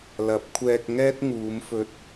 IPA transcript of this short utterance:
l ɐ˨˥ p̚ kʷʰ ɛː˧ k̚ ŋ ɛː˥ t̚ ŋ uː˨˧ m f ɵ˧ t̚

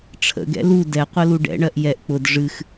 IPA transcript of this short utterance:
ʈ͡ʂʰ ə̰ ɡ ɛ̰ l u d ɛ qʷ ə l u ɖ ɛ̰ ɳ ɜ ʔ j ɛ ʔ k͡p ʊ d ʐ ɨ x

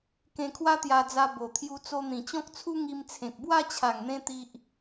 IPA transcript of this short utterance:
k ẽ˧ kʰ w a˦ t̪ j a˧ d͡z a˧ b o˨˩ t̪ʰ j u˧ t͡s o˧ n̪ ĩ˨˩ t͡ɕ ɔ̃˦ k̚ t͡sʰ u˦ ŋ i˧ m t͡sʰ ẽ˨ k̚ b w a˥˧ t͡ɕʰ a˨˩ ŋ n̪ ẽ˧ t̪ i˦ ʔ

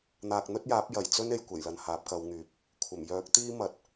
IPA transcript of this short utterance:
n̪ aː˨ k̚ n̪ ɵ˥ t̚ j aː˨˥ p̚ j ɐ˨˩ j t͡s ɵ˥ n e˨ j kʷ e˨˩ j l ɐ˨ n h aː˨˥ p̚ k ɐ˨˧ w ŋ yː˨ p̚ | kʷʰ ɐ˨˩ m j œː˨˥ k̚ t̪ iː˥ m ɐ˨˥ t̚

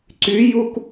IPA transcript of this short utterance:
ǀ y j u k

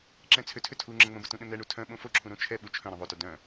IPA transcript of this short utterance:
ǁ ɛ̃ t͡sʰ ʏ tʰ ʏ tʰ u ŋ͡ǁ ə̃ ŋ͡m ə̃ b ə t ũ ɗ ə̃ n ɛ ɳ u tʰ œ̃ ɓ õ f o ǁʰ ũ ɾ õ t͡ʃʰ ɛ ɓ u t͡ʃʰ œ̃ ɾ œ̃ ðˤ o t œ d œ̃

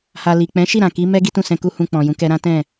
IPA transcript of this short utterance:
h a˨ l i˨ k͡p ɛ̃˨˦ ʃ i˦˨ ɾ ã˨ k i˨˦ m ɛ˦ ɡ i˦ t ũ˦˨ s ɛ̃˧ k u˦ h ũ˧ k͡p ɔ̃˨ j ũ˨˦ k ɛ˧ ɾ ã˦ t ɛ̃˦˨

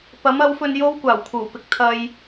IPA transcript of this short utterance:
p ɐ˨˥ m ɐ˨˥ w f ɵ˧ n j o˥ w kʷ aː˨˩ w kʰ uː˨˩ p ɪ˨ k̚ t̪ʰ ɐ˧ j

